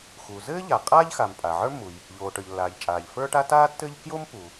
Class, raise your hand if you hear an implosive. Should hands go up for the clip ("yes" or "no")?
no